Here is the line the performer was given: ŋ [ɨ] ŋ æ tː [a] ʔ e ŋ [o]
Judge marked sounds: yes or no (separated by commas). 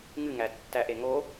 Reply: yes, no, yes